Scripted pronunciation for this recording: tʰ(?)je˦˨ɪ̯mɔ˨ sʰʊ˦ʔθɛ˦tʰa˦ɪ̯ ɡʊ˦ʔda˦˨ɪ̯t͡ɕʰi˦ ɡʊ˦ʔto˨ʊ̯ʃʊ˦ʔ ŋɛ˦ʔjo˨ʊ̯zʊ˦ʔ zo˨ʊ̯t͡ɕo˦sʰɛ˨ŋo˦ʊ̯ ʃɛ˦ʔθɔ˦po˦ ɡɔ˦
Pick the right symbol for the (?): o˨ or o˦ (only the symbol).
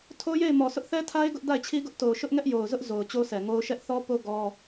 o˦